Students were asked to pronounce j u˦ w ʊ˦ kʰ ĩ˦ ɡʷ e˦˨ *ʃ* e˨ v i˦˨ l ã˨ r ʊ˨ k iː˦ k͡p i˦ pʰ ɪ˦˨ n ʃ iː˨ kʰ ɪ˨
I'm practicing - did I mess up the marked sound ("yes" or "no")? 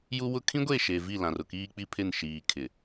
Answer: no